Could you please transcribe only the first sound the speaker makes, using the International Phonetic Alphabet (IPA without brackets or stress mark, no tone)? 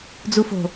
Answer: d͡z